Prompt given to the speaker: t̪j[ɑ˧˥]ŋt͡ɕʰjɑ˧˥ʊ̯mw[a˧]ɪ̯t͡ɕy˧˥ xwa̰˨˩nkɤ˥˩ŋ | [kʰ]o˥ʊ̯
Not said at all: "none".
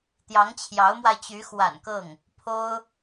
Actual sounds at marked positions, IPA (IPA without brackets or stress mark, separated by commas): ɑ˧˥, a˧, pʰ